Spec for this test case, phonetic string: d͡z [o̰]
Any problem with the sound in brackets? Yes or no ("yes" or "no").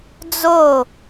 yes